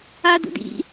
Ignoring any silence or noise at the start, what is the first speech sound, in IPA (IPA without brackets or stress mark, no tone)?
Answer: a